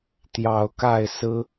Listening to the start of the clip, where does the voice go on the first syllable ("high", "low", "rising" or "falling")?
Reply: rising